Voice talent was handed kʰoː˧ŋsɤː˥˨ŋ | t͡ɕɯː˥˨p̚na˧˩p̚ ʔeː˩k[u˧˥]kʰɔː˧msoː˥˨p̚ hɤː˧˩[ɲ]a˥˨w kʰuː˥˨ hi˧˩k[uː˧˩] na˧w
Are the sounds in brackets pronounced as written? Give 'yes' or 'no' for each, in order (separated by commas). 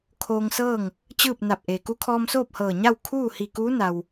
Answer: yes, yes, no